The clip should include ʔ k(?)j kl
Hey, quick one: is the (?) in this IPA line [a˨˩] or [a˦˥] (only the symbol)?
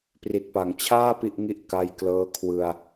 a˦˥